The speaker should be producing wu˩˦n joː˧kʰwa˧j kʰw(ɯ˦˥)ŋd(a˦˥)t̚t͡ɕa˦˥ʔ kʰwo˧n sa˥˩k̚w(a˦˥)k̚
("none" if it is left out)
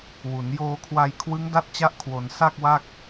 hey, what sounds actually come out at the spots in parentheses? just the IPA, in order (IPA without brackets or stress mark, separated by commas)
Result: ɯ˦˥, a˦˥, a˥˩